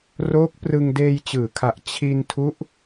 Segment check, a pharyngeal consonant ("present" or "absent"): absent